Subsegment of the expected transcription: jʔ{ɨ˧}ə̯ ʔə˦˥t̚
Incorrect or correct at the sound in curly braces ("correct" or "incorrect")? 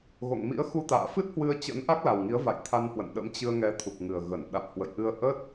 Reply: correct